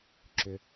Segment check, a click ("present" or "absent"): present